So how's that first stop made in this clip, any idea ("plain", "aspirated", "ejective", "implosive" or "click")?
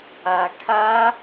aspirated